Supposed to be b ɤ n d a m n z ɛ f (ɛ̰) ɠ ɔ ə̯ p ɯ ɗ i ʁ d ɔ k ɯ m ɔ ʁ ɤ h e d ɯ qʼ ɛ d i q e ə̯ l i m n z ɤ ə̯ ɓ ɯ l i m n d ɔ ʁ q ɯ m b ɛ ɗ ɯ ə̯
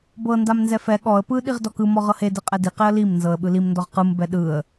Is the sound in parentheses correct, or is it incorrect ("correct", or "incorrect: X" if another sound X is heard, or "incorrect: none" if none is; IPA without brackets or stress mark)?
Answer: incorrect: ɛ